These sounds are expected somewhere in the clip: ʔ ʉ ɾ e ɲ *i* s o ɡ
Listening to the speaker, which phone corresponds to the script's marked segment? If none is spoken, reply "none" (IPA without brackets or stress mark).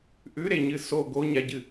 ɨ